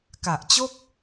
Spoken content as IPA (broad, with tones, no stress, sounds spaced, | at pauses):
k a˨˩ ʔ t͡ɕ o˥˩ k̚